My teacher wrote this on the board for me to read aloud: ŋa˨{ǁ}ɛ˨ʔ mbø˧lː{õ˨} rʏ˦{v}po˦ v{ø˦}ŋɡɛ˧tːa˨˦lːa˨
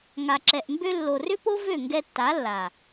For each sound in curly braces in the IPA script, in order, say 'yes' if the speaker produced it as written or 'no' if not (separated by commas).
yes, no, no, no